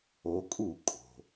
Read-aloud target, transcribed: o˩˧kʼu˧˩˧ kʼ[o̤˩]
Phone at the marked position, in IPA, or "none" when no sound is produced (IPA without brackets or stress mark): o̤˩